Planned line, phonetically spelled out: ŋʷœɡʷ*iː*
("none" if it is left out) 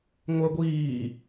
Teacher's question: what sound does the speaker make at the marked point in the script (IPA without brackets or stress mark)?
iː